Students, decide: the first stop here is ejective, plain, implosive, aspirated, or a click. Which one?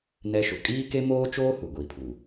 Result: ejective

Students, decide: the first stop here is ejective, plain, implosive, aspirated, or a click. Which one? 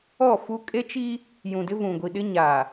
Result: ejective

